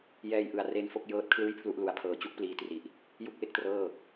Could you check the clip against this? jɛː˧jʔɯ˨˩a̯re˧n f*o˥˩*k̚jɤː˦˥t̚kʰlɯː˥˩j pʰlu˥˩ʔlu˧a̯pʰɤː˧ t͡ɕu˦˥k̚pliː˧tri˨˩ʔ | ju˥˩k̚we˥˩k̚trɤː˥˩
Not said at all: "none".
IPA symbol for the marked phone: o˥˩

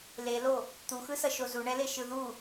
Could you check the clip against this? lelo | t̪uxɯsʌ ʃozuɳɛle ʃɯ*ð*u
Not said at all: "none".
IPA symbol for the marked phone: ð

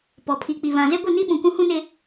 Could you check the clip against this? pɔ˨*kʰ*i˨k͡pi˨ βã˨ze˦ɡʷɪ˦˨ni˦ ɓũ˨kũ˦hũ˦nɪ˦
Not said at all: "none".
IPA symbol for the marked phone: pʰ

